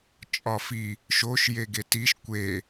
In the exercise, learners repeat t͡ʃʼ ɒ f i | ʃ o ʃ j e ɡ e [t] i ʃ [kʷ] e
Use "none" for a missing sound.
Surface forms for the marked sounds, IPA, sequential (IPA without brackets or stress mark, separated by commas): t, kʷ